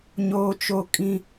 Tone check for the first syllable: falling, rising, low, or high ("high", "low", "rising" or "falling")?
high